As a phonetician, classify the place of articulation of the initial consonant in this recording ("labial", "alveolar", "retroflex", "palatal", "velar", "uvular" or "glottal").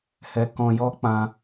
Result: glottal